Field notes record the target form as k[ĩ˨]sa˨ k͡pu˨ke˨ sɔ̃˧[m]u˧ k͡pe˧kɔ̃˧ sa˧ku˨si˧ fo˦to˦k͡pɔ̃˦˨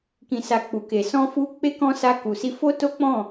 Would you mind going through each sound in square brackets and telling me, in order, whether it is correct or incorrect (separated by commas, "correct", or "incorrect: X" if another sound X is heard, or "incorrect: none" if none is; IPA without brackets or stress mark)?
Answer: correct, incorrect: f